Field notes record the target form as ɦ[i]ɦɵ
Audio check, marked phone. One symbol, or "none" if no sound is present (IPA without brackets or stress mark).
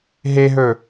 e